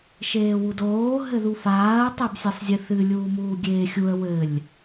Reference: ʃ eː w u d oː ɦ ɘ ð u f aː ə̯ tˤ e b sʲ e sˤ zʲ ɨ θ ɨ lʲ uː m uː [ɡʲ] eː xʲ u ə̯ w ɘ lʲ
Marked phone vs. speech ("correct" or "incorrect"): correct